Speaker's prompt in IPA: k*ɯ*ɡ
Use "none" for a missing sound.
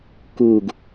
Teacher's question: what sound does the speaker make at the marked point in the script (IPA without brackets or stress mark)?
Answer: u